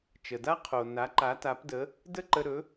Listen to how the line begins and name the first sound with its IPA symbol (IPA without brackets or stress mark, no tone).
t͡ʃ